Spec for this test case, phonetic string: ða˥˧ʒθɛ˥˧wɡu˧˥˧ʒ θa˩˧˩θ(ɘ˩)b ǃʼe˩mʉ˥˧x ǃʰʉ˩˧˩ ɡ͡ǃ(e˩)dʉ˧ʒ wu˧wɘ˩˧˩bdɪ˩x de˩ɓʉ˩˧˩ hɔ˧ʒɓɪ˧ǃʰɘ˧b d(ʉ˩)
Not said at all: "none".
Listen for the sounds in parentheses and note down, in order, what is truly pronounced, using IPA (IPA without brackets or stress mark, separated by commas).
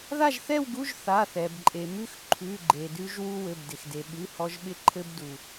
ɛ˩, e˩, u˩